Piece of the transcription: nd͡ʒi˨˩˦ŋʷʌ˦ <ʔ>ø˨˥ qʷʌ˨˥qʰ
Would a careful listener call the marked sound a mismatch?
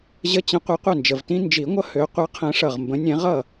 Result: yes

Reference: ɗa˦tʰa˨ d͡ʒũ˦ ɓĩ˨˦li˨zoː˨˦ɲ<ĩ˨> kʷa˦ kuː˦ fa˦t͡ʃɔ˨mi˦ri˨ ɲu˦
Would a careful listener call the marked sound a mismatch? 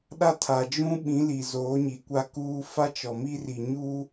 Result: yes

